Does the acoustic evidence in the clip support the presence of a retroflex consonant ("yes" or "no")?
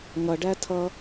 yes